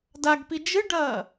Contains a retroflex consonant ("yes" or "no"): yes